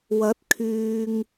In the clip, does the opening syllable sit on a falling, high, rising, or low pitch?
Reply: rising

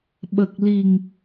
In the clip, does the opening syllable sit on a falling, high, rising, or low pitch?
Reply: low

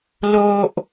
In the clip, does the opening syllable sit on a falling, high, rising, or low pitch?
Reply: high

